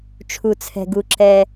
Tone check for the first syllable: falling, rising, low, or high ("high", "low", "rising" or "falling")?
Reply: low